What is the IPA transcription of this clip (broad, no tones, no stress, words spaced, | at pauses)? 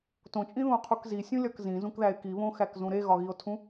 tõt͡ʃʼĩðũo̯qʰuk zisʲũlʲɒk zĩzũkðæe̯ kiβõxækzũ ɾeɣɒɣio̯tʰũ